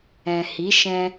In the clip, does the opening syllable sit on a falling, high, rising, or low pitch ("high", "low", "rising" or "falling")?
low